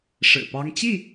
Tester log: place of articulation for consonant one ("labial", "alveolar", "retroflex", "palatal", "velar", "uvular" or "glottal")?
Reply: retroflex